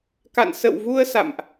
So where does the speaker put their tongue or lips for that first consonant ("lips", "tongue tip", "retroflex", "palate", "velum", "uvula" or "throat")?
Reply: velum